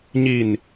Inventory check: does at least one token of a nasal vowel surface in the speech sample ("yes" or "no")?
no